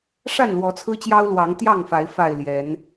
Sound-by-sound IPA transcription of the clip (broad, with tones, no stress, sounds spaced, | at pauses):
ʂ a˥˨ n l w ɔ˨˦ t͡sʰ ɹ̩˦ t͡ɕ j ɑ˦ ʊ̯ l w ɑ˨˦ ŋ t̪ j ɑ˥˨ ŋ f a˨˦ ɪ̯ f a˨˩ ɪ̯ l j ɛ˨˦ n